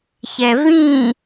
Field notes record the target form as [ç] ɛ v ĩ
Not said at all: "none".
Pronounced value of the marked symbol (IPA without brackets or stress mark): ç